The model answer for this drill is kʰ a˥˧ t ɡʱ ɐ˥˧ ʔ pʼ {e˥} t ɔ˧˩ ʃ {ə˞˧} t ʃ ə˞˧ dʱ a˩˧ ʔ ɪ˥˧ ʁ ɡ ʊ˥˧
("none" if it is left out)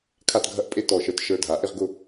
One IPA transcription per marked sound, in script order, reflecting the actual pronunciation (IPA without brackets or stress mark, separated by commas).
e˥, ə˞˧